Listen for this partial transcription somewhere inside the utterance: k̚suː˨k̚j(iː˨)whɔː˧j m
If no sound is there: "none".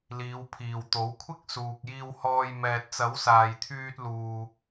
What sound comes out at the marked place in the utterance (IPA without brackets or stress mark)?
iː˧